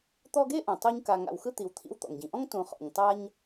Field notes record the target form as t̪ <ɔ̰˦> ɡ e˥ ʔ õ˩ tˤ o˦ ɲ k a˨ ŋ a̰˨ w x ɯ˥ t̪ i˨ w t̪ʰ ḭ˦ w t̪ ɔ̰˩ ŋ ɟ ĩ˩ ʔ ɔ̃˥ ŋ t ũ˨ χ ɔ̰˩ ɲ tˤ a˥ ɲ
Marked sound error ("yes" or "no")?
yes